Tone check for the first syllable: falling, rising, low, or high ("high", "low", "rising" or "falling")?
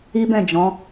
high